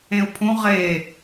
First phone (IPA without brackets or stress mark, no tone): ẽ